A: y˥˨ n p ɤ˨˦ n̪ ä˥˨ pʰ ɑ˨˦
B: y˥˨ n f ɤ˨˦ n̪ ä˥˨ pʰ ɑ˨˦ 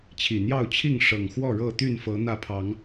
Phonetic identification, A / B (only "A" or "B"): B